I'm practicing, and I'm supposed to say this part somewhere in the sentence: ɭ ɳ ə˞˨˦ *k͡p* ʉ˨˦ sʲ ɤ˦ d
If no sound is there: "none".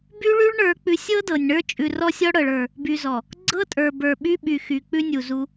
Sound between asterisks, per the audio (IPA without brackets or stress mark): k͡p